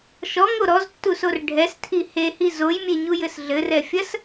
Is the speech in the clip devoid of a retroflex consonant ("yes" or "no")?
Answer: no